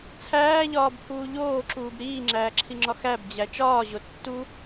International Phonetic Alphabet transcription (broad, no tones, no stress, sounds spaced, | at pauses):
t͡sʰ æː ʎ ɒː b pʰ uː ʎ oː ǁ uː b ɾ iː ŋ͡ǁ æː ǁʰ i ŋ͡ǁ ɒ x æ b d͡ʑ æ t͡ʃ ɒː ʑ o tː u